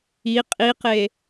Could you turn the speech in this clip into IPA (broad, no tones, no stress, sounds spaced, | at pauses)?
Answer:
i qʼ i q e